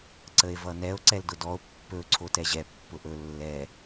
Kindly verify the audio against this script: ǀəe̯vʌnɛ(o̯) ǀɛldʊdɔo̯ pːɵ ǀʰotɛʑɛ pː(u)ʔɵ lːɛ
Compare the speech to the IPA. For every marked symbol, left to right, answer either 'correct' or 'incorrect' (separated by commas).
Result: correct, incorrect